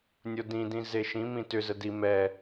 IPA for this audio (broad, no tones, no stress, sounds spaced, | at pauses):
nʲ o d ĩ d ĩ z e ʃ ĩ m ĩ t ʏ z ə d i m ɛ